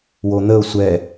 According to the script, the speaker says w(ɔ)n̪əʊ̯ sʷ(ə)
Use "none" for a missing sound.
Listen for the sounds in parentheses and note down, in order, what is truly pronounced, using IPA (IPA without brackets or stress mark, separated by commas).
o, ɛ